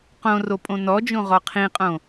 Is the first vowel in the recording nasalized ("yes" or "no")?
yes